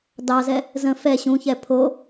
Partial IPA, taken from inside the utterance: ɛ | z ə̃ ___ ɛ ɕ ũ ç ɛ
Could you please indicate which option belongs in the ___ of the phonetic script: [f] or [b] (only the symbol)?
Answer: f